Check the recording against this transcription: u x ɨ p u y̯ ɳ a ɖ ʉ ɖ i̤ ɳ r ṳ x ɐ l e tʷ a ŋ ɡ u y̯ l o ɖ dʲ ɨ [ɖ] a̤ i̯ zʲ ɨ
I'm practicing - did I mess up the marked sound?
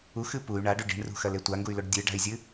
no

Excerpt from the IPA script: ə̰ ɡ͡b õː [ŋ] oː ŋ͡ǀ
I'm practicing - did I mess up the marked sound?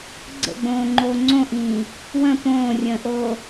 yes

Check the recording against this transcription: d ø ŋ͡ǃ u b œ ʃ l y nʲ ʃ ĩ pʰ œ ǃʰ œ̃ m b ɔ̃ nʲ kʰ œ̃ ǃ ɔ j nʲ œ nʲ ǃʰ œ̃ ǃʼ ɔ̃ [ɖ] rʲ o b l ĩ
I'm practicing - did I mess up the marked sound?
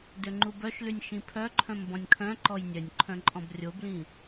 yes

